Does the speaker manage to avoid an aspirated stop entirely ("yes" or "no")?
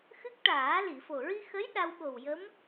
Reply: yes